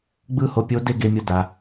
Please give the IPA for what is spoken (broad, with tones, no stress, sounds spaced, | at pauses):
ɡ͡b ɯ˥ h o˧ pʲ o˧˥ d e˥ ɡ e˧ mʲ o˧ d a˩